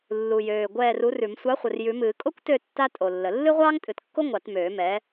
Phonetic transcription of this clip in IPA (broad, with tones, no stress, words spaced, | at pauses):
lːu˨˩jøː˨˩ ɡʷɛː˦˨ru˨˥rʉ˨˩˦m sʷɑ˨˥χʷə˨˩r jʉ˨˩˦mɨː˨˩˦ kʼo˥kʷtø˦˨ tːa˥tʼo˨˩lːə˨˩˦ lːɨ˥ʁʷɑː˥ŋtʼɨ˨˩˦tkːo˥ ŋʷɑ˨˩˦tmøː˨˩˦mɛː˨˥